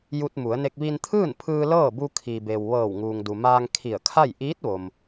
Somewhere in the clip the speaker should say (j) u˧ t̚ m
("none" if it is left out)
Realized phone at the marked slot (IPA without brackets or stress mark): j